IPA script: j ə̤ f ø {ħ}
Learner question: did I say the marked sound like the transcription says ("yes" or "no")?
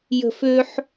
yes